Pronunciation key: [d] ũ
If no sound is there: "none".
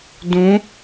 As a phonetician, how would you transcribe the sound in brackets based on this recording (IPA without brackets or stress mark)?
d